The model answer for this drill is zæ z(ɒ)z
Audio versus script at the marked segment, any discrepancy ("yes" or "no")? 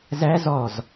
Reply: no